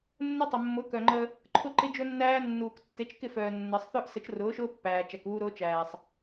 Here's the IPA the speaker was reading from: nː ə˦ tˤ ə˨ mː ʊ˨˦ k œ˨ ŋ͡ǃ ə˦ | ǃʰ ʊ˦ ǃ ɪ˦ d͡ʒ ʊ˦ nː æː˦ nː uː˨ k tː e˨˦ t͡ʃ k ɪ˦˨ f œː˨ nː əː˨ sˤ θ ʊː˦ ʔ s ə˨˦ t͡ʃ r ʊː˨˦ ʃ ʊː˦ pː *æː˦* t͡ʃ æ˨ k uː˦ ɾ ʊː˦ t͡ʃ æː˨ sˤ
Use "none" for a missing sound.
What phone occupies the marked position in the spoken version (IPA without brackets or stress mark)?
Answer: æː˨